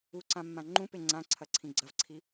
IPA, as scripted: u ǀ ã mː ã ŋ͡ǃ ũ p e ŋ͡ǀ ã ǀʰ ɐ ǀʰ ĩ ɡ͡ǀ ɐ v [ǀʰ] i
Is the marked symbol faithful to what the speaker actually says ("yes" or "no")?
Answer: yes